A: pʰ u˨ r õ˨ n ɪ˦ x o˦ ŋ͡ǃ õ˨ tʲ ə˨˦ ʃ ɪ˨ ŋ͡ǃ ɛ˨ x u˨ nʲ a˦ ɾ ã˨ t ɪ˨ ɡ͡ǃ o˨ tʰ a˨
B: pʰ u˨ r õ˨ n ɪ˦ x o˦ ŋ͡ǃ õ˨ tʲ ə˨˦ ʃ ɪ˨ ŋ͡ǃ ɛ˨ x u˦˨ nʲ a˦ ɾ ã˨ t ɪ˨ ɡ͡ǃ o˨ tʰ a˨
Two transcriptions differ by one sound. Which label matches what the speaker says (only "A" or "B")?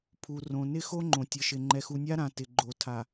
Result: A